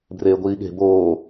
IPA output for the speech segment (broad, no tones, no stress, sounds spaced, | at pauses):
b r eː ɡʷ iː ɠ e̤ b oː